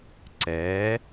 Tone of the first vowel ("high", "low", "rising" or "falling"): rising